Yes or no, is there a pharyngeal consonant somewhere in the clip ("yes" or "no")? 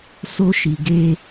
no